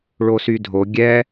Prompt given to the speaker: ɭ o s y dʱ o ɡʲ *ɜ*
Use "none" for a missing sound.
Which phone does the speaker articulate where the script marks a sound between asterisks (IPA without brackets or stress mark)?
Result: ɛ